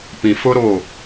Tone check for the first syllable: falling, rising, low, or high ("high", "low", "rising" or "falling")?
low